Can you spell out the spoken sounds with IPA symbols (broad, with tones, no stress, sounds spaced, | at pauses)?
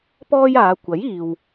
p ɔː˥ j aː˨˧ kʷ ɐ˨˥ j iː˨ w